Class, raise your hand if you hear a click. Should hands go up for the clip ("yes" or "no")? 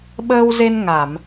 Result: no